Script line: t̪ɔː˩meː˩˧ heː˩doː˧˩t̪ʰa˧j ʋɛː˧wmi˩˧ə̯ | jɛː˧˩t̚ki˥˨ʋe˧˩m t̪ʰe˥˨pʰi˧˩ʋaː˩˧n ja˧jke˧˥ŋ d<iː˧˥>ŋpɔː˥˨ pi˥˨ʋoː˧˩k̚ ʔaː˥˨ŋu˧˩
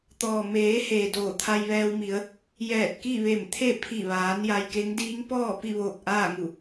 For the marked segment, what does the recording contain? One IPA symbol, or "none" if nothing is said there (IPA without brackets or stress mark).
iː˧˥